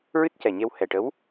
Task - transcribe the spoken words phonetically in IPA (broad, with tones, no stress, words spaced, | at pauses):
ɹɨ˦˥t̚cɛ˨˩ɲe˧w hɛ˨˩ʈə˧˥w